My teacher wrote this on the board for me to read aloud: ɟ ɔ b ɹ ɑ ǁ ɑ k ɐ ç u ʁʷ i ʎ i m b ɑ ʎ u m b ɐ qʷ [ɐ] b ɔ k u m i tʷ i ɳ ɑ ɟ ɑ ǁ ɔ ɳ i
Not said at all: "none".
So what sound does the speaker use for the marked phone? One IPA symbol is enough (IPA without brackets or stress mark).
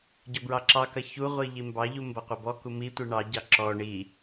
ɐ